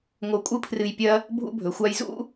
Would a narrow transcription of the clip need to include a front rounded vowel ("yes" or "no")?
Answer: no